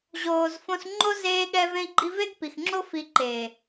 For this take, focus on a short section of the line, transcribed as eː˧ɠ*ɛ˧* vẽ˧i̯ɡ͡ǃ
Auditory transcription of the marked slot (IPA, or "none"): ɛ˧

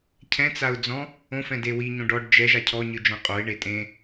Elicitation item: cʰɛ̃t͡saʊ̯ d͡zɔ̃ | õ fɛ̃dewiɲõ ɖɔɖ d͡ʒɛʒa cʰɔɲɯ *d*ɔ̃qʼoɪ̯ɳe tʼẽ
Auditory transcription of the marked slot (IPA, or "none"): d͡ʒ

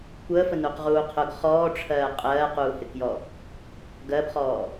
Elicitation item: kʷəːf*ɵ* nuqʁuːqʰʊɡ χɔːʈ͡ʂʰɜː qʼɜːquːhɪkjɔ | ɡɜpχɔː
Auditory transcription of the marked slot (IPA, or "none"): ə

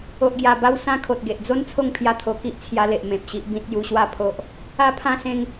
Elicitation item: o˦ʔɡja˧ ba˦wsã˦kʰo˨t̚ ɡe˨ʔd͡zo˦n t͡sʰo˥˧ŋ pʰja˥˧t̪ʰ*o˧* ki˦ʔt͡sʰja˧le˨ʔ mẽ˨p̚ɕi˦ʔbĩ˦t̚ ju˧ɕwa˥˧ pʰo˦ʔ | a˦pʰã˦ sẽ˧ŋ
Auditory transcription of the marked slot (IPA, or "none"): o˧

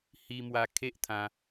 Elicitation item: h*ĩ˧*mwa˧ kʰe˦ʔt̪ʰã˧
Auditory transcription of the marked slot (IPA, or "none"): i˧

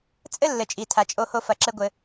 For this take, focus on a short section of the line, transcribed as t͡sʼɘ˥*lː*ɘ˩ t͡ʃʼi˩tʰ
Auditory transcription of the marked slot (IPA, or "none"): lː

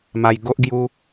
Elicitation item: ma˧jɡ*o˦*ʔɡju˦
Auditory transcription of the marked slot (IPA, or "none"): o˦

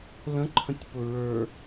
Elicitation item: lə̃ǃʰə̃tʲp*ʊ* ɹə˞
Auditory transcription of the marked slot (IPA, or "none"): ʊ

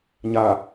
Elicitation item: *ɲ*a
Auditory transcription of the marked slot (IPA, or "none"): ɲ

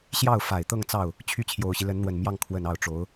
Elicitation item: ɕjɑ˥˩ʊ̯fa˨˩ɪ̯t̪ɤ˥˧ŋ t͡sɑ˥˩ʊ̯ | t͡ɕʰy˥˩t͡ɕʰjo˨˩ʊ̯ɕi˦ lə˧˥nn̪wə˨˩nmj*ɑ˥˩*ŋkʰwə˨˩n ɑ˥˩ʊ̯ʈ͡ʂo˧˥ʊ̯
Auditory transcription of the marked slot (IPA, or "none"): ɑ˥˩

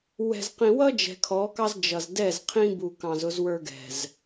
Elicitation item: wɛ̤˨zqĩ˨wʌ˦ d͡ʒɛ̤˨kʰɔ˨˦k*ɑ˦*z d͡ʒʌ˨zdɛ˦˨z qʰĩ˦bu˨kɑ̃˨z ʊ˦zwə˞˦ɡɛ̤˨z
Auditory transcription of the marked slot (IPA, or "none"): ɑ˦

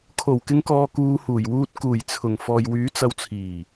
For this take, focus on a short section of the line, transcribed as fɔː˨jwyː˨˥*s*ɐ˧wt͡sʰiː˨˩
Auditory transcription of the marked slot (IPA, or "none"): t͡s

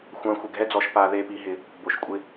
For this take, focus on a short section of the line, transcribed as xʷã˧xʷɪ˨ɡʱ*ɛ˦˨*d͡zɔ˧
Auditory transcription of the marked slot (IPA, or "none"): ɛ˦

